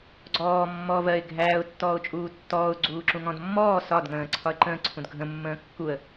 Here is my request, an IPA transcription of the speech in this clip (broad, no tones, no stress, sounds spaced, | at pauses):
ɡ͡ǀ ɔː mː ɔː v ɜ ɪ̯ ɡʱ æː ʊ̯ tː ɔː ʊ̯ t͡ʃʼ uː tː ɔː ʊ̯ ɡ͡ǀ uː ǁ ũ ŋ ɔ̃ d mː ɔː s ɒ d ŋ ə̃ː ǀʰ ɒ ə̯ ǃ ə̃ː ǀʰ ũ d ɡʱ ə̃ mː ə̃ː kː u ə̯